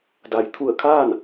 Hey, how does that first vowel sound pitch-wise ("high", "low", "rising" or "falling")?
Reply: low